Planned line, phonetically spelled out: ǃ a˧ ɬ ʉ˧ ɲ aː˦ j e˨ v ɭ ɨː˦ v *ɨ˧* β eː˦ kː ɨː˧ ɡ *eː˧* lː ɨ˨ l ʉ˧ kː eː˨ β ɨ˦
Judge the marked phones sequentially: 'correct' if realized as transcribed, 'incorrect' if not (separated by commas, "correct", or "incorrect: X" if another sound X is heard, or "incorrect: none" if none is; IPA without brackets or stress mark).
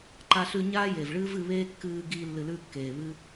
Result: correct, incorrect: iː˧